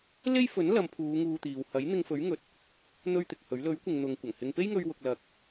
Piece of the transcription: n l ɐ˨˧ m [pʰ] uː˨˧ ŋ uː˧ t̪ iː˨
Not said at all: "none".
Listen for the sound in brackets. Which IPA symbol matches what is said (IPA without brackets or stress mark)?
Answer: pʰ